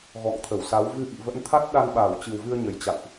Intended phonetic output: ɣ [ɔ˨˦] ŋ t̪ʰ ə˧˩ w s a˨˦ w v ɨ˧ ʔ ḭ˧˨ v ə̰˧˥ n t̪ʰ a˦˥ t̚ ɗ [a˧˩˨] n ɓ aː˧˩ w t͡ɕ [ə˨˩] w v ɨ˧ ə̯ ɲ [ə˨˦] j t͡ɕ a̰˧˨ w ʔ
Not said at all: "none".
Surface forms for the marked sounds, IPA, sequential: ɔ̰˧˨, a˧, ɨ˨˩, ə˨˩

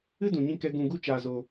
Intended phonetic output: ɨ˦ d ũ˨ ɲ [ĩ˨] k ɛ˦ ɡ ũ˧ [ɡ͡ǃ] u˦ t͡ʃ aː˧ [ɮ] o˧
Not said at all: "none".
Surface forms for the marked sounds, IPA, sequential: ĩ˦, ɡ, z

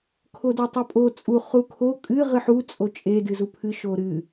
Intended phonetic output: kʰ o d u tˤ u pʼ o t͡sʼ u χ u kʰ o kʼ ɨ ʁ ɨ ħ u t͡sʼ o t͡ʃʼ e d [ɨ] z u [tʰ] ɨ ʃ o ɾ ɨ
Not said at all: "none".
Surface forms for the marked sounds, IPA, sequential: ɨ, pʰ

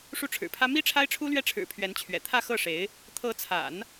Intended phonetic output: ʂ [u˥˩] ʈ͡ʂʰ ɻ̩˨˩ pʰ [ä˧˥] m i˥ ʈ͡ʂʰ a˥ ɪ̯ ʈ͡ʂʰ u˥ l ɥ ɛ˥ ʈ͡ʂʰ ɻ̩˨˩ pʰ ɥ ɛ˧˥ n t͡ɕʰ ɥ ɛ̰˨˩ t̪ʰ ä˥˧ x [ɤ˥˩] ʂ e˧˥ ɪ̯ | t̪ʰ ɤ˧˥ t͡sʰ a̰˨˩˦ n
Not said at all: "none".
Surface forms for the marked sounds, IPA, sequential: u˥˩, ä˥, ɤ˥˩

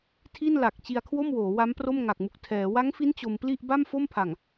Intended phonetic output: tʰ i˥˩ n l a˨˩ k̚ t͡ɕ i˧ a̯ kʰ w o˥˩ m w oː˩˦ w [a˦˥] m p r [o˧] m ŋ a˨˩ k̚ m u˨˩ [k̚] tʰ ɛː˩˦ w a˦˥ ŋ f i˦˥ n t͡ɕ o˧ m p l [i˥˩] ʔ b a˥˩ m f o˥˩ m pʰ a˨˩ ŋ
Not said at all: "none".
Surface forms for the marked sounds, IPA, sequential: a˦˥, o˥˩, k̚, i˥˩

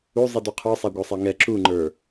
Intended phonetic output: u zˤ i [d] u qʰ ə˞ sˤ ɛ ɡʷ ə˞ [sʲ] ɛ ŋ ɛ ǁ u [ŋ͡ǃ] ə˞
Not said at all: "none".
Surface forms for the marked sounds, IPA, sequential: d, sˤ, ŋ͡ǃ

